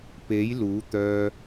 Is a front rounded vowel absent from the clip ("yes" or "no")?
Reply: no